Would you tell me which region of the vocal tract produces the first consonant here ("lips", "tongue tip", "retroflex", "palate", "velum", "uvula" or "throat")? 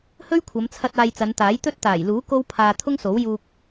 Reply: throat